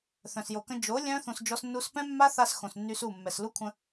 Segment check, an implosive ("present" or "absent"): absent